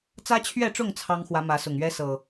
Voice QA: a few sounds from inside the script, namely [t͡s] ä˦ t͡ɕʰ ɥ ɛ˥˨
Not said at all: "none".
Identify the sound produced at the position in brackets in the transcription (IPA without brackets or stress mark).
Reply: t͡s